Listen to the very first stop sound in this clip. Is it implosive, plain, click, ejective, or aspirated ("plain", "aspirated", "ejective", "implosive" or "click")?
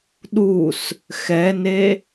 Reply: implosive